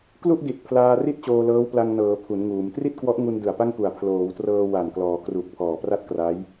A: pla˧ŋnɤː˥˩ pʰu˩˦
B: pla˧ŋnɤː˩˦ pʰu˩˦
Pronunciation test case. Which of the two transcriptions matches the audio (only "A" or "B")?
B